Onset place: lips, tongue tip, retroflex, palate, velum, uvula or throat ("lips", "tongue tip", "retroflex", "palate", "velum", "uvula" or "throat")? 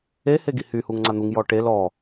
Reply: throat